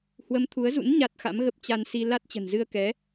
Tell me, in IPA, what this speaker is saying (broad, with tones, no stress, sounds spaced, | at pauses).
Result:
h w ə˨˦ m t̪ʰ u˨˦ ə̯ z ṵ˧˥ n ɲ a˦˥ t̚ x a̰˧˥ m ɣ ə˦˥ p̚ t͡ɕ a˧ n s i˧ l a˦˥ t̚ t͡ɕ ə̤˨˩ n z ɨ˧ ə̯ k ɛ˨˦